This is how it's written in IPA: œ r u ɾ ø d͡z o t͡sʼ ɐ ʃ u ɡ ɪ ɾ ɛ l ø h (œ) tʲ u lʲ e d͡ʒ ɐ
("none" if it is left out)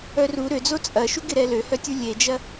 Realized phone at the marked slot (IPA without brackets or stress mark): œ